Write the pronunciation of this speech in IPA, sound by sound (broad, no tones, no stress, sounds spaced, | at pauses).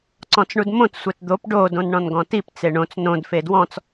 ǀ ɔ̃ t͡s ɳ u d m õ t sʷ ɛ t d̪ o p ɖ o d õ n ɳ ɔ̃ n ɡ ɔ̃ t i p t͡s e ɳ õ t͡s n õ d f e d w ɔ̃ t͡s